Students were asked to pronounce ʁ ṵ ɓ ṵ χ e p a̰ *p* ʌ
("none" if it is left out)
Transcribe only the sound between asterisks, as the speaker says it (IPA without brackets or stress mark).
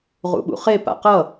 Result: q